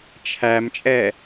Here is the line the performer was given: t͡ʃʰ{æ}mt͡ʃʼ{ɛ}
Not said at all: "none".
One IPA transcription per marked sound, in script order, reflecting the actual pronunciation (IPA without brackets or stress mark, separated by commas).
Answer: æ, ɛ